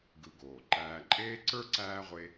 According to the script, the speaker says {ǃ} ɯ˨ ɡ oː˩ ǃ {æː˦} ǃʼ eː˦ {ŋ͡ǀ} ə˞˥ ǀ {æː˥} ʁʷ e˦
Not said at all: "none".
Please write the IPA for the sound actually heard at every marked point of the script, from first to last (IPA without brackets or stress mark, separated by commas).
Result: ɡ, æː˨, ǀ, æː˥